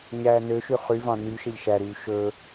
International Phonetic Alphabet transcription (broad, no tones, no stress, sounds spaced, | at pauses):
ɲ æː n ø ʃ y χ y v ɑ̃ n y ʃ e ʎ ʃ æ ɾ yː ʃ ɵ